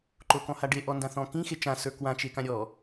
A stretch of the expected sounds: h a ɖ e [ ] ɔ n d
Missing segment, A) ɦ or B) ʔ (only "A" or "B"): B